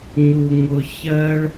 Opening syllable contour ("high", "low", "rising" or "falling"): low